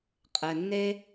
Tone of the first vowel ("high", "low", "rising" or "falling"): low